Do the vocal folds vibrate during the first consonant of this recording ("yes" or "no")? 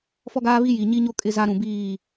no